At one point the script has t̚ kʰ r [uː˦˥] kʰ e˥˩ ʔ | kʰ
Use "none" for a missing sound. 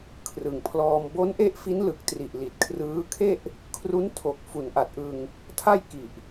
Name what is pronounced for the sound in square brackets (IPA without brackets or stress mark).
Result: ɯː˦˥